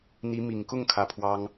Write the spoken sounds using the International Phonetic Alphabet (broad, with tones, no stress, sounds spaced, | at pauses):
n̪ i˧˥ m i˨˩ ŋ k ʊ˥˩ ŋ kʰ ä˧˥ pʰ w ɑ˥ ŋ